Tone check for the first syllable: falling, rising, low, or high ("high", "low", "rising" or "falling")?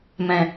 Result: low